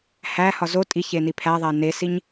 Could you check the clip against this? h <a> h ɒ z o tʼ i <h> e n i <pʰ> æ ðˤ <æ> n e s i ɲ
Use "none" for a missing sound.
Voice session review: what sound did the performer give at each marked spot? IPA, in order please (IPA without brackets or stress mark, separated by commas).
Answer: æ, ç, pʰ, æ